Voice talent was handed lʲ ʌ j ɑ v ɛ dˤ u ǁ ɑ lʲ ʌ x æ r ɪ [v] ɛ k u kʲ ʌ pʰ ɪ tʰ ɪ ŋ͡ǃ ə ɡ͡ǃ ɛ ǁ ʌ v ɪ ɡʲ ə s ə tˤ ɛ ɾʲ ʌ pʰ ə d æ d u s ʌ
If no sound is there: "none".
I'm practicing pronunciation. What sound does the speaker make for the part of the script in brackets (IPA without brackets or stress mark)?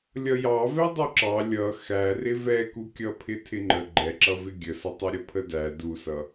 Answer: v